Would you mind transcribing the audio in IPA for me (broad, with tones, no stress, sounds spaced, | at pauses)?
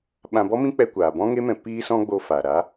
ɓ ã˧ b ɔ˦ m ĩ˦ k͡p ɛ˧ kʷ aː˨ b ɔ̃˦ ŋ e˦ m ɛ̃˧ p iː˦ s ɔ̃˦ ɡ͡b o˦ f aː˨ ɾ a˨˦